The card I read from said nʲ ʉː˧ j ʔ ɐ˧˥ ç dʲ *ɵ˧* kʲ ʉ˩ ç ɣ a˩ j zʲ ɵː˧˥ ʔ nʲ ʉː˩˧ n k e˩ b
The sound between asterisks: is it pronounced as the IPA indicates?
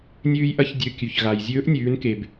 no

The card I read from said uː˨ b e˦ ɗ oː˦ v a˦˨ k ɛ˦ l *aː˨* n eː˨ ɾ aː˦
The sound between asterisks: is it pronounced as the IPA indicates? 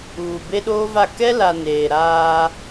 no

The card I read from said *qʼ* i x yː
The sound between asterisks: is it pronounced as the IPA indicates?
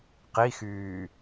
no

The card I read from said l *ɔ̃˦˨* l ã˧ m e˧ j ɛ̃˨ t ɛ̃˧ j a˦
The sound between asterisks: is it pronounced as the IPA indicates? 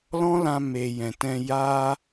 no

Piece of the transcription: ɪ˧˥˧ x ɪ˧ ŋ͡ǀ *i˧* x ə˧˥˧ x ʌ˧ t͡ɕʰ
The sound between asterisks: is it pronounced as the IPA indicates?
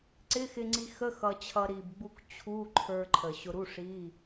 yes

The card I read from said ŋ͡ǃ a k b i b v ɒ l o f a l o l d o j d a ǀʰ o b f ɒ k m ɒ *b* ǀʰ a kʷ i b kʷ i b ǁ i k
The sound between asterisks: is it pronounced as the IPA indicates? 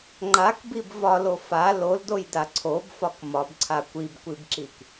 yes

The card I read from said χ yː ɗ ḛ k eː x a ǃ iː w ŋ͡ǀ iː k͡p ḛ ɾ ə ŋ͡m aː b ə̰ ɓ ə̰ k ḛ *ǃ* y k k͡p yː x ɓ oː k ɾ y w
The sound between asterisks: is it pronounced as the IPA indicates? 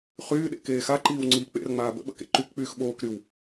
yes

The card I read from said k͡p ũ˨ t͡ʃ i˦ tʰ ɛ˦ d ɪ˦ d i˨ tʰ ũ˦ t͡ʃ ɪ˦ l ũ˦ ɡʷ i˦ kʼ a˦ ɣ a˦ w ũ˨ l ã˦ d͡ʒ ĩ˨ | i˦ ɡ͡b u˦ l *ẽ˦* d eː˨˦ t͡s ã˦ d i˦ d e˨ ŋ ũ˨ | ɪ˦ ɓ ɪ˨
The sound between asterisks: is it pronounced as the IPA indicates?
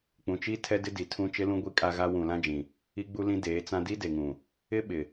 no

